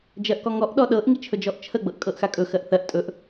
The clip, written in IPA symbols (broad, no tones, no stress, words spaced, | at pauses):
d͡ʒɜʔkɔŋɔʔ ɗɔɗɤʔ ŋit͡ʃʰɵd͡ʒɔʔt͡ʃʰə ɡ͡bɤʔkʼɤʔxakʼɵ xɜʔθɜʔ tʼɵʔ